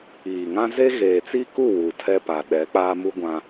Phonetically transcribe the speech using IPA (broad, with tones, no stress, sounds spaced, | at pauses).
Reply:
iː˨ ŋ ã˦ z e˦ ɣ eː˨ t͡s i˦ k u˦˨ w u˨ tʰ ɛ˦ p a˨ ɗ ɛ˨˦ k͡p aː˦ m u˦ ɡʷ ã˦